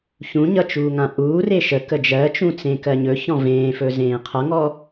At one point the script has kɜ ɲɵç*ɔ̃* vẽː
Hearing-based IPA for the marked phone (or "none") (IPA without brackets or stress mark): ɔ̃